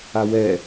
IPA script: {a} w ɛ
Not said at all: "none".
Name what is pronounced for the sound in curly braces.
a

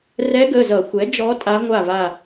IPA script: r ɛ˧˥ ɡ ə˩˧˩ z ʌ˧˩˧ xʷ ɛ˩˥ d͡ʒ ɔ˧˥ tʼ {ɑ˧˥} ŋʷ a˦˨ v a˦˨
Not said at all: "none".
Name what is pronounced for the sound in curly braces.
a˧˥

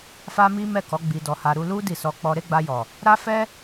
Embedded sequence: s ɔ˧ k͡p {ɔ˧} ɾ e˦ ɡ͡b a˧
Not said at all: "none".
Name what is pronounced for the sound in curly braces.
ɔ˧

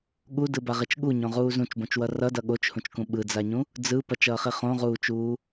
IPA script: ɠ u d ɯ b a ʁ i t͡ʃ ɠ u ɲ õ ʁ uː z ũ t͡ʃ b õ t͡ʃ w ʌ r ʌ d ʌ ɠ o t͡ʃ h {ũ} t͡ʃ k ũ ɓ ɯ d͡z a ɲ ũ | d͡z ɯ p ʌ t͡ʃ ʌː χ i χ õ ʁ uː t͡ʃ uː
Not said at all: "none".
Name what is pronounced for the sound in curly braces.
ũ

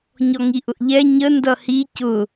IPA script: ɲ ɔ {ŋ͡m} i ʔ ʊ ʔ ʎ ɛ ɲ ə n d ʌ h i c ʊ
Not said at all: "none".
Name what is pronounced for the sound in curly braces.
ŋ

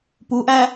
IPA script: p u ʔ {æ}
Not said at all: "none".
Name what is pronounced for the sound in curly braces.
æː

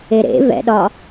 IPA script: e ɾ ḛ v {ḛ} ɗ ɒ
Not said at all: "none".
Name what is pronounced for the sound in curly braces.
ɛ̰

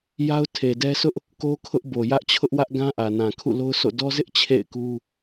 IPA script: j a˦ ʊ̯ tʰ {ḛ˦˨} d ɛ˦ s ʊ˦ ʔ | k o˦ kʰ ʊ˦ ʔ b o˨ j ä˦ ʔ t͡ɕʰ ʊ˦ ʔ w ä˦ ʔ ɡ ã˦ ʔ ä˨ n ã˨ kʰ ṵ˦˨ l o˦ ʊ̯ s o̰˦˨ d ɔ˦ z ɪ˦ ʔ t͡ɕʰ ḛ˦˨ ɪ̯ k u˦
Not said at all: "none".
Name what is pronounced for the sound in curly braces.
e˨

